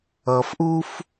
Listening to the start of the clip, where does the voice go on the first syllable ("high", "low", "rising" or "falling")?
low